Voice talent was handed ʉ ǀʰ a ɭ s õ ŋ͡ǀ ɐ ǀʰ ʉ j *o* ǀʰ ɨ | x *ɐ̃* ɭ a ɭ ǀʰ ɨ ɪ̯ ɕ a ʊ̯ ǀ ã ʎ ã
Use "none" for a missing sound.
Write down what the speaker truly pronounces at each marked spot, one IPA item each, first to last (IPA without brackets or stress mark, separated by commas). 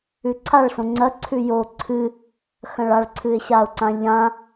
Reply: o, ɐ̃